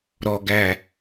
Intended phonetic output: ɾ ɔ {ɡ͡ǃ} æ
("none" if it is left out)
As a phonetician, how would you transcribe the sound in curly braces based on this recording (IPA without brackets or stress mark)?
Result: ɡ